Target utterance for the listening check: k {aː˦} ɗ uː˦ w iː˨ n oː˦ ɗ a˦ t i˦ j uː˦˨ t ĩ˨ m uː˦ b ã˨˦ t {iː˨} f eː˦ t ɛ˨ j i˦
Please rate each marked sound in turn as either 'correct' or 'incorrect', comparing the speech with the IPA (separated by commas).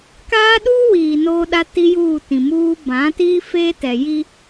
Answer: correct, incorrect